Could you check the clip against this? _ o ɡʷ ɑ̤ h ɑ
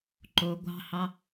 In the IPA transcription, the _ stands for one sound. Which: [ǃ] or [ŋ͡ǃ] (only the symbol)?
ǃ